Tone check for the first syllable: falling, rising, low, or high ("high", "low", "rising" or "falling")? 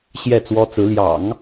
falling